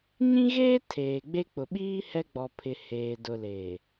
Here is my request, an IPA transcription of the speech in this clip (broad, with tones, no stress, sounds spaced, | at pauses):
ɲ ĩ˦ ɣ eː˦ tʰ eː˨ ɡ͡b e˦ k͡p ʊ˨ ɓ iː˦ h ɛ˦ ɡ͡b ɔ˨ pʰ ɪ˨ h eː˨ d ʊ˨ l eː˨